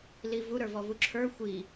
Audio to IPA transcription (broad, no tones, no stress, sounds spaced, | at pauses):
l i v u ɾ ə˞ v ɔ v u ǁʰ ə˞ xʷ i